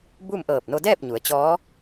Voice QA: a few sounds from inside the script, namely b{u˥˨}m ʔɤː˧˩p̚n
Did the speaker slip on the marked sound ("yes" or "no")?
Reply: no